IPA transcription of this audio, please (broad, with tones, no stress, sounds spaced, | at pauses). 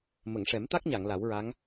m ə˨˩˨ ŋ ʂ ɛ˨˩˦ m t̪ a˦˥ k̚ ɲ a˨˩˨ ŋ l a˨˩˦ w ɹ a˧˥ ŋ